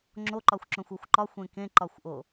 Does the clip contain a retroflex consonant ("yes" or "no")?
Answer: no